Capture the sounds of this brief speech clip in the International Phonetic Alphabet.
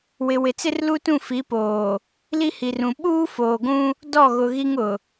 wɪ˨wɪ˨t͡sɪ˦r lu˦tũ˦˨fi˨˦ poː˨ | li˦hi˨rũ˨ ɓuː˦foː˨ɡʷũ˦ | dɔ˦˨ɣʊ˨ ɣi˦ŋ ʊ˨

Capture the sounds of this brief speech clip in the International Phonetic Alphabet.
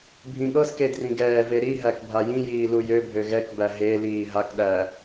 bʱĩɠɤske drĩɡɛːve ɾiɦæk bʱajĩjiː lujøbʱø ɣɛkbæ ɦe liːɦakɗæ

